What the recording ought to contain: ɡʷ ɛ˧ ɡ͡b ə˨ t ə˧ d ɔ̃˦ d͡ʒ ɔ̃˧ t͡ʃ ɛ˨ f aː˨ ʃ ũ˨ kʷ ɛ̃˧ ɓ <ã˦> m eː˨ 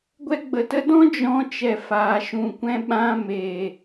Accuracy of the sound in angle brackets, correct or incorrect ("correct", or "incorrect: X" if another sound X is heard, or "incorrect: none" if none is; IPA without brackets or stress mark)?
incorrect: ã˧